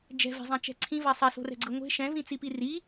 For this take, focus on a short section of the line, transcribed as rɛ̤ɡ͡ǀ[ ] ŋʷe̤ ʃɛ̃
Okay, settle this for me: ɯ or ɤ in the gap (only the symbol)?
ɯ